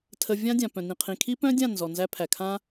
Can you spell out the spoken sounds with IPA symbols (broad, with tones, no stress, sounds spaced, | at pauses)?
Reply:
tʰ ə˧ vʲ ã˦ dʲ ã˨ p œ̃˨ n ĩ˨ qʰ ĩ˨ kʰ i˦ p œ̃˦ dʲ ã˦˨ n z ɔ˨ n z æ˧ pʰ æ˨ kʰ ã˦